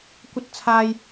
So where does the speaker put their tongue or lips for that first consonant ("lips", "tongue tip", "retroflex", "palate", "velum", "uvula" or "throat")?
velum